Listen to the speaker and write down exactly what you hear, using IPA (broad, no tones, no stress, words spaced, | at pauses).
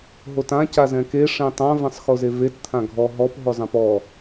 ɦotã cazɛ̃ke ʂẽtˤãv ɛ̃sˤxozevet t̪ʰãɡʱɔ ɦɔp ɦozˤɛ̃pɔ